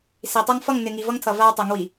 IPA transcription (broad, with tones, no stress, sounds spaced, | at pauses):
s i˨ tˤ a˦ ŋ f ʌ˦˨ ŋ n ɪ˨ ŋ i˨ v ʌ˦ ŋ tʰ ʌ˨ v a˦ w tˤ ʌ˨˦ ŋ w i˨